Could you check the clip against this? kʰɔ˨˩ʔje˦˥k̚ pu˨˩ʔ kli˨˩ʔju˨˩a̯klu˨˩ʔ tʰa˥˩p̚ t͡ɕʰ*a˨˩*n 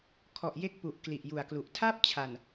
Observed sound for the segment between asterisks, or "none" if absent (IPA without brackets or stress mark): a˨˩